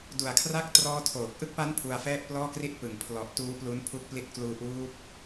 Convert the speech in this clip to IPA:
d u˨˩ a̯ kʰ r a˥˩ k̚ t r ɔː˦˥ tʰ oː˨˩ k̚ ʔ ɯ˥˩ k̚ p a˦˥ n pʰ u˧ a̯ f ɛː˥˩ t̚ p l ɔː˥˩ k r i˥˩ t̚ p ɯ˨˩ ŋ pʰ l ɔ˨˩ ʔ t uː˦˥ p l u˦˥ n pʰ u˦˥ k̚ p l i˦˥ t̚ k l uː˦˥ ʔ uː˦˥ p̚

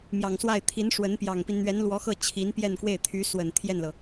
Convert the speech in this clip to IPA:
m j ɑ˨˩ ŋ s w a˥˩ ɪ̯ t̪ʰ i˧˥ n ʂ w ə˧˥ n p j ɑ˨˩ ŋ p i˦ n n̪ ɥ ɛ˧˥ n l w ɔ˧˥ x ɤ˥˩ t͡ɕʰ i˧˥ n p j ɛ˥˧ n k w e˥˩ ɪ̯ t̪ʰ y˧˥ s w ə˨˩ n t̪ʰ j ɛ˥˩ n l ɤ˩

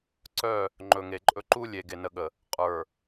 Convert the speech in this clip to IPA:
ǀ œ˦˨ | ŋ͡ǃ ɵ˨ ŋ e˨ ǃʼ ɵ˦ ǃ u˦ lʲ e˨ ɡ e˨ n ə˨ ɠ ə˨ | qʼ ə˞˨

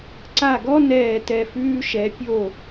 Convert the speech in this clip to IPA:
ǀ a˥˨ ɡ ɔ˥ n ɛː˥˨ t ɛ˥˨ f ʉː˥ ʃ ɛ˨˥ pʲ o˥˨

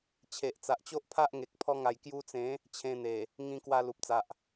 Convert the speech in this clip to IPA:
t͡ɕʰ e˨ ʔ t͡s a˨ ʔ t͡ɕ o˦ ʔ pʰ a˦ ʔ ŋ e˨ k̚ pʰ ɔ˧ ŋ a˨˩ j k j u˧ t͡s ẽ˨˦ | t͡ɕʰ ẽ˧ n̪ e˨˩ | ŋ ĩ˧ k w a˧ l u˨ p̚ t͡s a˨ ʔ

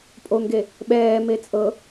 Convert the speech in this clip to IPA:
pʼ o ŋ ɡ e | ɓ ɛː m e t͡sʼ ɤ

